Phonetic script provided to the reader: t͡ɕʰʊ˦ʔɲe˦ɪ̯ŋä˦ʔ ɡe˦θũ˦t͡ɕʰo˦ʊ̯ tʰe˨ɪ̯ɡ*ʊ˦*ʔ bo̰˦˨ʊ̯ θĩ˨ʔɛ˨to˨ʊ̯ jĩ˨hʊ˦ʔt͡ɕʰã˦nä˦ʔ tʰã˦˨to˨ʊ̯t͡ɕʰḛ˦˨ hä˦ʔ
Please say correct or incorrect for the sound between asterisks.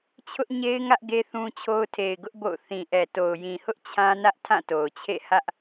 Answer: correct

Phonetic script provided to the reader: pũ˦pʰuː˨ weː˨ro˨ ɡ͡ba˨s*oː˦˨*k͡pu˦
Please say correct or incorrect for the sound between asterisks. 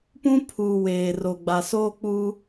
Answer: incorrect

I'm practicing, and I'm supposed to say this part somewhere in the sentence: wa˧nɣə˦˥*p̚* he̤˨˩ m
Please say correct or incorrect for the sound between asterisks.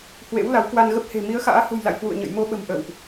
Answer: correct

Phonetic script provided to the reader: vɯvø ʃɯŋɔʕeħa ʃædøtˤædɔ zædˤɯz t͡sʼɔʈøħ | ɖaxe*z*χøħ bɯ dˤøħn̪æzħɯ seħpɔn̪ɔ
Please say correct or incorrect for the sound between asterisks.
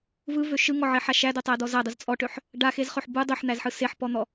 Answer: correct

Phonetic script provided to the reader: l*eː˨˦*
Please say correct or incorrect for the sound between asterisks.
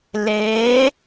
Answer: correct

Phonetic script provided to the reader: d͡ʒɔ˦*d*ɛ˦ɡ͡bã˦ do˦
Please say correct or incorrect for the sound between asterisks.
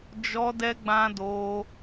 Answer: correct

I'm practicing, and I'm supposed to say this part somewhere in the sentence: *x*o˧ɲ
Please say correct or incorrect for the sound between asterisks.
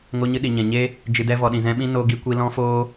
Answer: incorrect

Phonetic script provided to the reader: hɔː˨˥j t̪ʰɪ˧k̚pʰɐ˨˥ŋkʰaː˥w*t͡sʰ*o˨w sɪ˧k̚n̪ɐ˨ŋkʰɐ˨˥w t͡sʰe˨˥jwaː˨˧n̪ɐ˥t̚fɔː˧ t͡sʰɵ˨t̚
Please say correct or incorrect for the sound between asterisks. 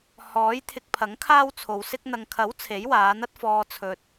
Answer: correct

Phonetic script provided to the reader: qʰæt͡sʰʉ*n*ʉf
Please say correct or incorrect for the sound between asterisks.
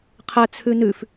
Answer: correct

